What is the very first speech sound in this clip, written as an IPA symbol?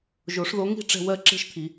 ʒ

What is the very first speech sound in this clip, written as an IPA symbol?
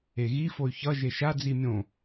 e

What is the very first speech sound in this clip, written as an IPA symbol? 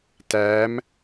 t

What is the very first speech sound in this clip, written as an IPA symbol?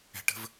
ɛ̤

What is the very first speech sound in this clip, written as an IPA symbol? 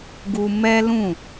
ɡ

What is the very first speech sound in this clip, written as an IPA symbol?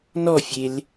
n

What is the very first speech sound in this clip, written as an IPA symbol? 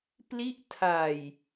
p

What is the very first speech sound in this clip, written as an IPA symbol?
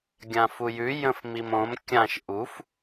ɡʲ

